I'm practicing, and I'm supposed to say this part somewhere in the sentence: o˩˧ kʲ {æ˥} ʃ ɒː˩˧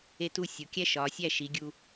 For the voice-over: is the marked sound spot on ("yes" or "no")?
yes